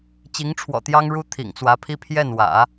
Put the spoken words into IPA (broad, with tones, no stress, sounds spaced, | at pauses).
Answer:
t͡ɕ i˧˥ ŋ ʈ͡ʂʰ w ɔ̰˨˩ t̪ j ɑ˥ ŋ ɻ u˥ t̪ʰ ḭ˨˩ ŋ t͡s w ä˧˥ pʰ i˥ pʰ j ɛ˥˩ n w ä̰˨˩˦